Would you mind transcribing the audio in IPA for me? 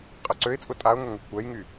qʼ ɐ ǀ ø ɪ̯ t͡sʼ ʊ tʼ a ʊ̯ ŋ ʊ ŋ ɐ xʷ kʷ ɛ j ŋ y

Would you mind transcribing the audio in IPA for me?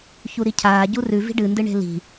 ç u ɾ i cʰ aː ɟ u r ʉ v i̤ ɖ ɨ n d ɨ ɳ e̤ l i̤

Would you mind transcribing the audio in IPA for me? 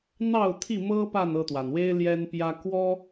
n̪ ɑ˥˨ ʊ̯ t̪ʰ i˥˨ m ɤ˦ p a˥˨ n ɤ˥˨ t̪ w a˩ n w e˦ ɪ̯ l j ɛ˦ n p j ä˦ k w ɔ˦

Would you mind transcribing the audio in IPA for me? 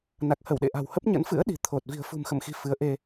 n a˨˩ k̚ h ə˧˩ w ɗ ḛ˧˨ ʔ a̤˨˩ w h ə˦˥ p̚ ɲ ə̰˧˥ n f ɨ̰˧˥ ə̯ ɗ i̤˨˩ t̪ʰ o˨˩ t̚ v i̤˨˩ ə̯ f ṳ˨˩ m x ə̰˧˨ m x i̤˨˩ f ɨ˨˦ ə̯ ʔ e˧

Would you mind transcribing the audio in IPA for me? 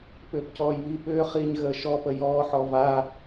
p ʏː p c ɔː j β i p ʏː χ iː ɲ ɣ əː ʃ ɔ p ə j ɔː ħ ɔ v a

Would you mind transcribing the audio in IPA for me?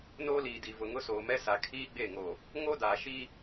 n oː˦ l iː˨ d i˨ v ʊ˨ ŋ ʊ˦ s oː˨ m ɛ˦ s a˨ kʰ iː˦ ɡ͡b e˦˨ ŋ o˨ | ŋ o˦ d aː˨ ʃ i˦

